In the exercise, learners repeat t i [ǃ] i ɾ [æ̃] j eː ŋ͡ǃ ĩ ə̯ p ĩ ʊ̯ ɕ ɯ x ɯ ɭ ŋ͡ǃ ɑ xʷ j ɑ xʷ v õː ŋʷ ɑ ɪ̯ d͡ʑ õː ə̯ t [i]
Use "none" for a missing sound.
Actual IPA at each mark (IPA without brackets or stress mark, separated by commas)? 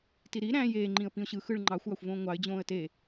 ɾ, æ̃, e